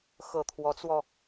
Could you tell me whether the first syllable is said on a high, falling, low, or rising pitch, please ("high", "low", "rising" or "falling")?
low